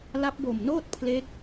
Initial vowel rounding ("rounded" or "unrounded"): unrounded